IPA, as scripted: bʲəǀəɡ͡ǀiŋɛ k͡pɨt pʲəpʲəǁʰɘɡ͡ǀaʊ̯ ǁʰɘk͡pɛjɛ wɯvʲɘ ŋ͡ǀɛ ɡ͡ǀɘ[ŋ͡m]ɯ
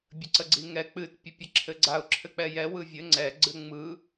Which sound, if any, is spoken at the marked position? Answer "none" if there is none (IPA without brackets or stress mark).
ŋ͡m